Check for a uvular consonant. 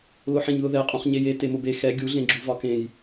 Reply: present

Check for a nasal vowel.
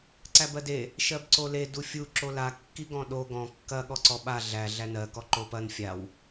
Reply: present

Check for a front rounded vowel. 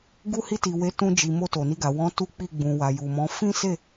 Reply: absent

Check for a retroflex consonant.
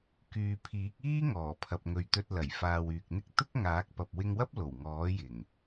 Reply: absent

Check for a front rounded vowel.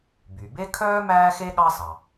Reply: present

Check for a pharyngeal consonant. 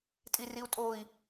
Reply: absent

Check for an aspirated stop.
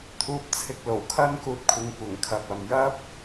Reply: present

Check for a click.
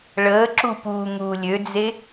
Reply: present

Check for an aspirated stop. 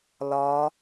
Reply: absent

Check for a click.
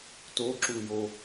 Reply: present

